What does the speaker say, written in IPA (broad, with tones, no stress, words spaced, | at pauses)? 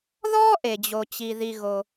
ðɔː˥ʔe˩ d͡ʑo˩t͡ɕi˩ ði˩ɣo˩